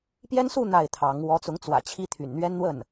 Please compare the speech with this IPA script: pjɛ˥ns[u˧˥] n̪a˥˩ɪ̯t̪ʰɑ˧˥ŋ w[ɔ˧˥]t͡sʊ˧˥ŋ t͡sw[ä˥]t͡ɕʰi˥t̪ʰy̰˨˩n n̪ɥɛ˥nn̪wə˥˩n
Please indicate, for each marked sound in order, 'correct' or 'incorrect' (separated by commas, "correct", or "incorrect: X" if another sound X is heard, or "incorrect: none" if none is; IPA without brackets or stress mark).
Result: incorrect: u˥˧, correct, incorrect: ä̰˨˩